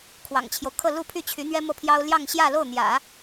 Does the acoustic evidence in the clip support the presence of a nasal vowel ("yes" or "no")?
no